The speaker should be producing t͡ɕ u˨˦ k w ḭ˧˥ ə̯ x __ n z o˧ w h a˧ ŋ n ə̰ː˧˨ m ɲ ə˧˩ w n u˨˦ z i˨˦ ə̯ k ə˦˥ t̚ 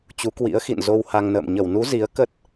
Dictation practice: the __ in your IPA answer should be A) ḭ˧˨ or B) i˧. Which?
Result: A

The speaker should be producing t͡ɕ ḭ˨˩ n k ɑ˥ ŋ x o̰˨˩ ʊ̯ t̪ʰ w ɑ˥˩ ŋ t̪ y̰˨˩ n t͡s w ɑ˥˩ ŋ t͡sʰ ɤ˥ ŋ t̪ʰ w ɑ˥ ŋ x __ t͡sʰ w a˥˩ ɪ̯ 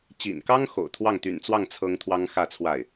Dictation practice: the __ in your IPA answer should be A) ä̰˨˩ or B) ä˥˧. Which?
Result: B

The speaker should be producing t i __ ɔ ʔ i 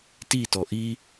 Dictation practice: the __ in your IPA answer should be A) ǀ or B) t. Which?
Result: B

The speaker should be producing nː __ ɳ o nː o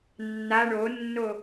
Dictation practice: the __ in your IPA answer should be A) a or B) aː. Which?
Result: A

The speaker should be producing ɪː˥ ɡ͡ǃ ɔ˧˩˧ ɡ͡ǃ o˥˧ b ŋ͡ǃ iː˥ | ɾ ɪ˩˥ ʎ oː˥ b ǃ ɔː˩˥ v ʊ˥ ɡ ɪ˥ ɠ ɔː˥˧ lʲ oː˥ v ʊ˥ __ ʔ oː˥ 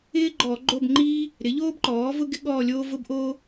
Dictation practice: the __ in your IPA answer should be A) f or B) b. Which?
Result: B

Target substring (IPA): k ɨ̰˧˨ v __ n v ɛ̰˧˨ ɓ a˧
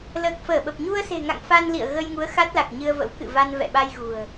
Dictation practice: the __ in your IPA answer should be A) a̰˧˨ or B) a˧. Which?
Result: B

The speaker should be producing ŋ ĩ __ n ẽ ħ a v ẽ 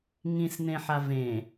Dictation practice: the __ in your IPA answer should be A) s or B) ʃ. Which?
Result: A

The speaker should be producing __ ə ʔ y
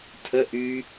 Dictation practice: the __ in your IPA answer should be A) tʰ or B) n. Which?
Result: A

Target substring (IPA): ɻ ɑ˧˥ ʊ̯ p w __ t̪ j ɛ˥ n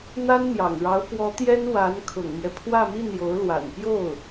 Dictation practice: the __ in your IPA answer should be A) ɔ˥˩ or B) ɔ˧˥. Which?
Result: B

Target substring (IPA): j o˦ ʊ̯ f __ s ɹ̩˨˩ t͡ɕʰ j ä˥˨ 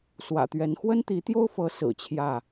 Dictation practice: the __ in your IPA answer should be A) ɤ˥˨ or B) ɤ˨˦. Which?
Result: B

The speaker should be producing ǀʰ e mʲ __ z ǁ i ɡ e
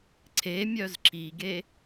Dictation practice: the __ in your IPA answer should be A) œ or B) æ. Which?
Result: A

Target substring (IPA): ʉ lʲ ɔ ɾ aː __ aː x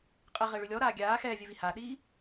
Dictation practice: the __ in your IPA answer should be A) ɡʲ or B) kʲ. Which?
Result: A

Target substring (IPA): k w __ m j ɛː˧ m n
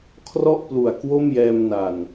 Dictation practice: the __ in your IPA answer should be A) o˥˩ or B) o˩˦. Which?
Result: A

